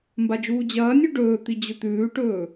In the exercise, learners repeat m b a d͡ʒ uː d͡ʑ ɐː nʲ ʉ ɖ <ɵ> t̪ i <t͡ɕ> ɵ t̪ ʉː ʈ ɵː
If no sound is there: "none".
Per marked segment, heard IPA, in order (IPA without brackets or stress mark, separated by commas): ɵː, d͡ʑ